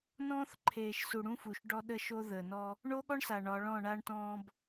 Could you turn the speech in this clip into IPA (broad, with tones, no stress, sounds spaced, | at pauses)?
n ɔ̃ː˦ θ ǃʰ eː˨ ʃ s u˨ ɽ ũ˦ f u˨ ʃ ɖ ɔ˦ ɗ ə˦ ʃ o˦ ð əː˨ n ɔ˦ | ɳ o˦ ɠ ɔ˦ ɳ s a˨ ɳ ɒ˨˦ ɭ ɔ̃˦˨ ɳ a˦ ɳ t ɔ̃ː˦ b